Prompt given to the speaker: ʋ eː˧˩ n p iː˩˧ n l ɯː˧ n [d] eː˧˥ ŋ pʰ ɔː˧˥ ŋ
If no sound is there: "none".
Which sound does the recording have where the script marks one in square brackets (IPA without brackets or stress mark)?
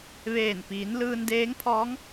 d